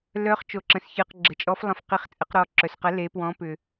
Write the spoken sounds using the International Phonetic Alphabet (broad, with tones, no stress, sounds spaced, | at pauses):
l œ˩˧ χ t͡ʃ o˩ ǁ ə̃˩ s ç ɨ˩ q ɡ͡ǁ ə˩ t͡ʃʼ ɔ˩˧ f lˠ ə̃˩˧ f q i˩˧ χ t͡sʼ ə˩˧ q ɾ ɔ˩ ǁ œ˩ s q ɐ˩˧ l e˩˧ p w ɔ̃˩˧ p ʏ˩